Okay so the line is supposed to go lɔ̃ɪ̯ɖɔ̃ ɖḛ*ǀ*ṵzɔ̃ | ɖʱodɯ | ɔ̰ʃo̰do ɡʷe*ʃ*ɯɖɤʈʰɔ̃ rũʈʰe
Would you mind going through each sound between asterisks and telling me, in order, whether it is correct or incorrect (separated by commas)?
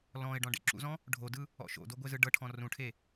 incorrect, incorrect